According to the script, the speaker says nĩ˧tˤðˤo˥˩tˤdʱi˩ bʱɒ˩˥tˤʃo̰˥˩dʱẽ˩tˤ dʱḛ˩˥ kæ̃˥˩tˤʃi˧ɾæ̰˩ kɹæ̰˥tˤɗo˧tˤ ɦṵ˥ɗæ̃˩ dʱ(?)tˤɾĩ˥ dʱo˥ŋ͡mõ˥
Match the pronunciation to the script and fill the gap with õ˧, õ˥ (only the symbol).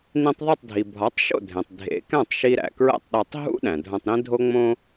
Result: õ˧